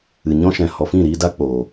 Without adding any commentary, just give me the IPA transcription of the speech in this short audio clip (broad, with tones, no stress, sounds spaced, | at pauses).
ɨ˨ ɲ ɔ̃˦ ʃ ɛ̃˨ h ɔ˨ f ĩ˦˨ ɾ iː˧ d a˦ k͡p oː˨